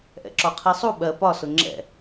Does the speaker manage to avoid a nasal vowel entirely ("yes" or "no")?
yes